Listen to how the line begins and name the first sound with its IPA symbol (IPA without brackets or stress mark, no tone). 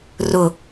r